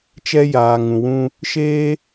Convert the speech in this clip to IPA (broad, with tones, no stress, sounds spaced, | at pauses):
t͡ʃ ɛ˦ j aː˨ ŋ ũ˨ w ũ˧ | ʃ eː˦